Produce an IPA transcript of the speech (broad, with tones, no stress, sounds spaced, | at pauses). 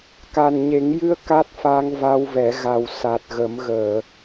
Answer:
k a˨˩ n ɲ e˨˩˦ ŋ j ɨ˧ ə̯ k a˦˥ t̚ f a˧ ŋ v a˧ w v ɛ˨˩˦ ɣ a˨˩ w s a˨˩ t̚ ɣ ə˨˩˦ m ɣ əː˨˩˨